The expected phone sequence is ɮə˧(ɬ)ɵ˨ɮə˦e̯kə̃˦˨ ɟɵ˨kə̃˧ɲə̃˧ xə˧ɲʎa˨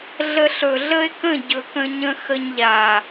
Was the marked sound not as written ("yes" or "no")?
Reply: no